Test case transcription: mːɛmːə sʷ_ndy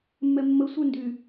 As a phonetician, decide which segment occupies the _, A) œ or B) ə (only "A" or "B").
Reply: A